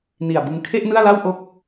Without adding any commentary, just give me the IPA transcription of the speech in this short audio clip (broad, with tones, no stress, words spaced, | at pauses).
ni˨˩a̯bɯ˧ŋ kʰe˥˩ʔnɯ˥˩a̯la˥˩wʔo˦˥k̚